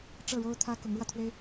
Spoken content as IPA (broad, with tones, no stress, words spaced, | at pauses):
ʈ͡ʂɤ˥˩ɻo˥ʊ̯ t̪ʰä˥ kʊ˧˥ŋɻwä˧t̪ʰwe˥ɪ̯